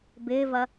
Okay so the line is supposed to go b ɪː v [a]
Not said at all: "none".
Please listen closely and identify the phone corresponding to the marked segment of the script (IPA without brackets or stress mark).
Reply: ɐ